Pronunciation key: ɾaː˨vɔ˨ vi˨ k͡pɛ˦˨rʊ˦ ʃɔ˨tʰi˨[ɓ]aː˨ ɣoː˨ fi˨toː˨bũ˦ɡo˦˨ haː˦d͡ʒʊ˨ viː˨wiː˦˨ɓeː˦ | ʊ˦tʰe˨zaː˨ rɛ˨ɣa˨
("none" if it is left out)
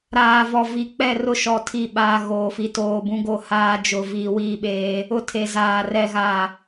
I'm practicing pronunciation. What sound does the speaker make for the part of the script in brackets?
ɓ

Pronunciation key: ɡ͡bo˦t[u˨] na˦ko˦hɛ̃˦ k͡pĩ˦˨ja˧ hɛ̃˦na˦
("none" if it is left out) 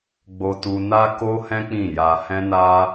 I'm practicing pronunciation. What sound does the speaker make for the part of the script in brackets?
u˦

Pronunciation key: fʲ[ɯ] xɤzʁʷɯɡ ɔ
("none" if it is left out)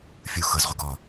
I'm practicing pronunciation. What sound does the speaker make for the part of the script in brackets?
u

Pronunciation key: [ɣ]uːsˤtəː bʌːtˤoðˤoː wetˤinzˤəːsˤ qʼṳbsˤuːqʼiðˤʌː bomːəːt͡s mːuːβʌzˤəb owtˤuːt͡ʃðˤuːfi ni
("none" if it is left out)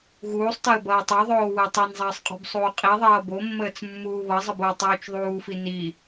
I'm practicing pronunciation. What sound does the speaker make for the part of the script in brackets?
ɣ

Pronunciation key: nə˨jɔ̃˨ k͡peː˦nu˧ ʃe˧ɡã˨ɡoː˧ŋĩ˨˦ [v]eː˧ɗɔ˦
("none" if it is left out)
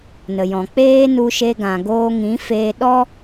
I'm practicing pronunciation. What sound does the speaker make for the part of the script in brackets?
f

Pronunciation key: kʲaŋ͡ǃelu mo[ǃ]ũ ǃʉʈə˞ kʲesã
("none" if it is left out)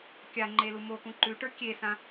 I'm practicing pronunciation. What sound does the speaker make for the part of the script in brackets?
k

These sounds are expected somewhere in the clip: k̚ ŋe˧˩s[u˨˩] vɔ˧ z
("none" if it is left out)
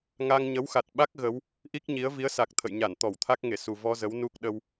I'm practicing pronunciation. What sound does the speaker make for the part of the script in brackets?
u˨˩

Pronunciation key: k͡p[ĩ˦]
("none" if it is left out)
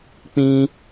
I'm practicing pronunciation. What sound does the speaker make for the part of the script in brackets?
ĩ˦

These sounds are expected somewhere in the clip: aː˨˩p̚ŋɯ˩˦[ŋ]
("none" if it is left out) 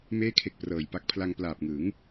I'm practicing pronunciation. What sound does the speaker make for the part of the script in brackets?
ŋ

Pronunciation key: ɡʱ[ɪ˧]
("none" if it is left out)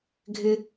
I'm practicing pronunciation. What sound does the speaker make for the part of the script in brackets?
ɪ˧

